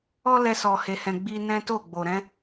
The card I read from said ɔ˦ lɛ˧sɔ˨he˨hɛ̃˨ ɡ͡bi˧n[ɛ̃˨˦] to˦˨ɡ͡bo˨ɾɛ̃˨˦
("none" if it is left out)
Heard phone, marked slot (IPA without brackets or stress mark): ɛ̃˦